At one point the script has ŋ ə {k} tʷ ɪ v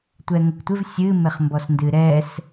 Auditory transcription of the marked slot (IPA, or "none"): k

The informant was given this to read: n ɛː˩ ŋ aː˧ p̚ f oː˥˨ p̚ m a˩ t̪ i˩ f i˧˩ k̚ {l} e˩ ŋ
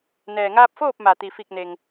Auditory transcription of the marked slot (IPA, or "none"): n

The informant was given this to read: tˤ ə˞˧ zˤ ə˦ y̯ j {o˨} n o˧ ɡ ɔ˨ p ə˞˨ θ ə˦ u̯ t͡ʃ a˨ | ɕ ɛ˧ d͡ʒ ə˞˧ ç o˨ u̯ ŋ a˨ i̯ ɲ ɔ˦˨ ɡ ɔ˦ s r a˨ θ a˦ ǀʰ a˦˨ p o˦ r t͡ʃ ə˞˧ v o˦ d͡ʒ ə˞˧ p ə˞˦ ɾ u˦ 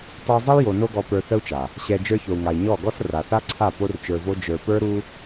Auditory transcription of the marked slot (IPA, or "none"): o˨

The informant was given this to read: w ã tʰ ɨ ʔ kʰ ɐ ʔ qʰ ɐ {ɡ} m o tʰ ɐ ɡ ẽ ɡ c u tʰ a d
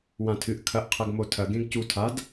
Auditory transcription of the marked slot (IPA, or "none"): ɡ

